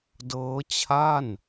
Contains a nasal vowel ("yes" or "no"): no